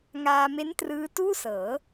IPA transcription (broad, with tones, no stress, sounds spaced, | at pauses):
ŋ aː˧ m e˦˥ n t r ɯː˦˥ t uː˥˩ s ɤː˩˦